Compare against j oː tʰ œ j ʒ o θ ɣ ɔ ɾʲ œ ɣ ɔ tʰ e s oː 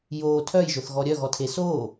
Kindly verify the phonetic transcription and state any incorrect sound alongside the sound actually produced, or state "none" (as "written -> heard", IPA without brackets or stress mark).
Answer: none